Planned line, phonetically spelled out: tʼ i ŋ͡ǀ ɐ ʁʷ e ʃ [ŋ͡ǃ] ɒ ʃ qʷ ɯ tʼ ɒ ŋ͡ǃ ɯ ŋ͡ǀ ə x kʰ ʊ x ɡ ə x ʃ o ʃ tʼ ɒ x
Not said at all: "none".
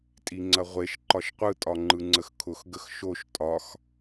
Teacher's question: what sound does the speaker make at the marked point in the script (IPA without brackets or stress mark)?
ǃ